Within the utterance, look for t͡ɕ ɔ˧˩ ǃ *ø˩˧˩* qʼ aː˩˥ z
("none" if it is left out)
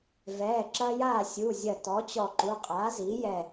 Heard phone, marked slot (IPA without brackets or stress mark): u˩˧˩